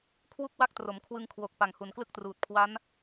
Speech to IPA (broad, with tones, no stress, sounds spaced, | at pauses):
kʰ w u˥˩ k̚ w a˥˩ k̚ t r o˩˦ m kʰ w ɯ˧ ŋ kʰ w o˨˩ k̚ p a˨˩ ŋ h u˨˩ n k l ɯ˥˩ k̚ t r uː˨˩ t̚ kʰ w a˦˥ n